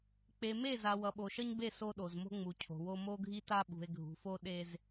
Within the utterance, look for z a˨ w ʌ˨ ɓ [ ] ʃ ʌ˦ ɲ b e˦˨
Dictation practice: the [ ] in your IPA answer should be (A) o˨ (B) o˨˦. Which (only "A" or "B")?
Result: A